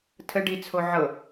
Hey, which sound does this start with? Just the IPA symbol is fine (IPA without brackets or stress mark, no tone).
tʰ